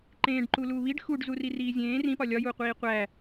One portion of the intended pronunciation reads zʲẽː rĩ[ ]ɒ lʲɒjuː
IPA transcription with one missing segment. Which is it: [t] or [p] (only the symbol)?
p